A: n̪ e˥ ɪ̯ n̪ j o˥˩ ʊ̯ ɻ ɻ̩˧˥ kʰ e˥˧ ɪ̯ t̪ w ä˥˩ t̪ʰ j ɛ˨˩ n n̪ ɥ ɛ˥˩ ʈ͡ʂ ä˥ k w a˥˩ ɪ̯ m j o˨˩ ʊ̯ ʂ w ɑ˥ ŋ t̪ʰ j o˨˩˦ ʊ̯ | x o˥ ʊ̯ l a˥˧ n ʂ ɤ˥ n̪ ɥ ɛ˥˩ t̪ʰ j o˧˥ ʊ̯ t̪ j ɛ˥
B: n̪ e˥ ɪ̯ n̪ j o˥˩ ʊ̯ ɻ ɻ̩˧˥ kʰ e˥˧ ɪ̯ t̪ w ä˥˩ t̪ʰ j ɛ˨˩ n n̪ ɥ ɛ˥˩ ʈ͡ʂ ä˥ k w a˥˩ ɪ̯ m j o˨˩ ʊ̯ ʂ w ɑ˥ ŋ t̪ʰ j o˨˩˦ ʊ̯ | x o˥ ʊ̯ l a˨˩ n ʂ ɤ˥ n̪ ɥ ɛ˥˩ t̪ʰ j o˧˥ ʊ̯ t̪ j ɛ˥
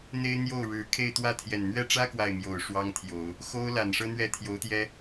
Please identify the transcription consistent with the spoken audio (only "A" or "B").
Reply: B